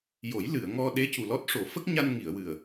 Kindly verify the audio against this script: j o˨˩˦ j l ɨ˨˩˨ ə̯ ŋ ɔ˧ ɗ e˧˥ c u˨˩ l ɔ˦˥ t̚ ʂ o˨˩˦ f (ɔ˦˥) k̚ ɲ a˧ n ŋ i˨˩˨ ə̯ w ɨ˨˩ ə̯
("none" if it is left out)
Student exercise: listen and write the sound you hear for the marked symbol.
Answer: ə˦˥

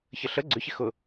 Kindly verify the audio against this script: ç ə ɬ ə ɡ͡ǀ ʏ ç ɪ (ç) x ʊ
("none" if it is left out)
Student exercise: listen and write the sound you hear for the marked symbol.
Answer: none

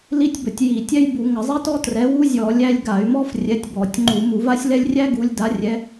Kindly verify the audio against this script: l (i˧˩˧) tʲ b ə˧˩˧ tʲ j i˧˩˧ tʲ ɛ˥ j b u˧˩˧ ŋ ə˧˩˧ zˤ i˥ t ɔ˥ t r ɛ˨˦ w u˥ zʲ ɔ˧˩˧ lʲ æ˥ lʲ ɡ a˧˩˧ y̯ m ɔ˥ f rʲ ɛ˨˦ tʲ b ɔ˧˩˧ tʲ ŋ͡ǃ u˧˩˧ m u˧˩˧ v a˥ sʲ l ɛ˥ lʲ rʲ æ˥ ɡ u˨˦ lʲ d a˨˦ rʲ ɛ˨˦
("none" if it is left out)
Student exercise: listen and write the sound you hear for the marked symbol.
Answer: i˥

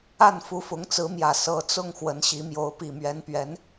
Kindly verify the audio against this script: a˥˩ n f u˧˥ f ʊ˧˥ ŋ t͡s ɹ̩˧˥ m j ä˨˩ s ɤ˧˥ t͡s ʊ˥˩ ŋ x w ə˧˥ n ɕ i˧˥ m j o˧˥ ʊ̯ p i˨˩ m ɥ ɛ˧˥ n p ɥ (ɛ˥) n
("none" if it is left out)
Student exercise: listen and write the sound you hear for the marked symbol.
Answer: ɛ˧˥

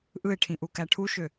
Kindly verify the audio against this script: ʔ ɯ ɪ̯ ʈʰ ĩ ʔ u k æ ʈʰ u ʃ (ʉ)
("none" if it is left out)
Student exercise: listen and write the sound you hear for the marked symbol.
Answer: ø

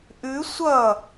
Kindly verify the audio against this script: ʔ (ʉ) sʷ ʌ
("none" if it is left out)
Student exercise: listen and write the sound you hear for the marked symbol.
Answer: ʉ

